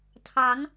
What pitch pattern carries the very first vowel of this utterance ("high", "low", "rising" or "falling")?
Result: rising